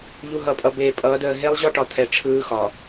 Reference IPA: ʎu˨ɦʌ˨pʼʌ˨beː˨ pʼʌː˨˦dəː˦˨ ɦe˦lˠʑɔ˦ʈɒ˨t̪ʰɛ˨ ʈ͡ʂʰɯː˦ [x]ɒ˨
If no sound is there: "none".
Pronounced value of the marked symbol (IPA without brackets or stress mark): x